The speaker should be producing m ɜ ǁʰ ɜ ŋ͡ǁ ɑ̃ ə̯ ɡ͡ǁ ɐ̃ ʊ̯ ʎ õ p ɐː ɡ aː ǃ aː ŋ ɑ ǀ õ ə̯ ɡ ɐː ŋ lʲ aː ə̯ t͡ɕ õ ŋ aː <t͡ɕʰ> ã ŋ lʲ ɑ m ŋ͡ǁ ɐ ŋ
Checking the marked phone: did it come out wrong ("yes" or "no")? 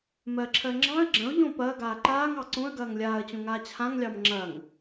no